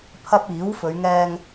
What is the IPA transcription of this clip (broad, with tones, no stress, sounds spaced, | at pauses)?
pʰ ɐ˧ p̚ iː˨˥ w f ɵ˨˧ ɥ ŋ ɛː˧ ŋ